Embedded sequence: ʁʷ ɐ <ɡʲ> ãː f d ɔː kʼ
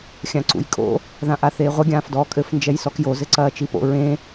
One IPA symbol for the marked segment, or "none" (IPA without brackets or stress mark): ɡʲ